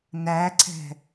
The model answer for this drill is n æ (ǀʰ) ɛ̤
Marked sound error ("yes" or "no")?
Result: no